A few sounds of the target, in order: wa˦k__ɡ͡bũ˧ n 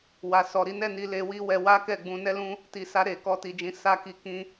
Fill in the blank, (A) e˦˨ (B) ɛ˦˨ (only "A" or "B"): B